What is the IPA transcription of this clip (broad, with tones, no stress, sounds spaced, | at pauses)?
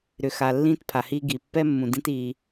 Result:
ɾ ʏ˨ x a˨ lː ĩː˦ t pʰ a˨ h iː˦ ɡ i˨ pː ɛ˦ mː ũ˨ d ĩ˦ t iː˦